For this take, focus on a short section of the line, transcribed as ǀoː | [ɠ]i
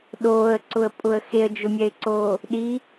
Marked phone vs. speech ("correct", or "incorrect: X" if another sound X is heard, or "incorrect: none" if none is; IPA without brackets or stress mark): incorrect: ɗ